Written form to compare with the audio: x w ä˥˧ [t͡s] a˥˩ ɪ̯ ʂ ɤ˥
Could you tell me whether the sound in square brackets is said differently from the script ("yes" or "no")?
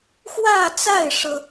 no